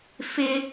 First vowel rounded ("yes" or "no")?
no